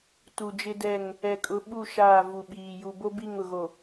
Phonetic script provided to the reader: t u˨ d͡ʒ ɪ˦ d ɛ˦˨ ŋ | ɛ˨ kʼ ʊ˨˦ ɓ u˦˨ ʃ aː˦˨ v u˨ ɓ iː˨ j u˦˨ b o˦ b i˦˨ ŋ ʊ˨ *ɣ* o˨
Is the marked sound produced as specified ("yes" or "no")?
yes